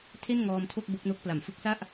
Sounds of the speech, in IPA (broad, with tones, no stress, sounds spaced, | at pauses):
tʰ e˥˩ n ŋ ɔː˧ m tʰ o˥˩ k̚ b o˦˥ k̚ n o˥˩ k̚ p l a˩˦ m f ɯ˦˥ k̚ s a˥˩ ʔ